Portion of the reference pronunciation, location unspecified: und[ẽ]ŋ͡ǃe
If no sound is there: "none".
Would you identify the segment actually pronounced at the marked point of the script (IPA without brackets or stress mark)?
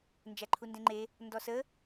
ẽ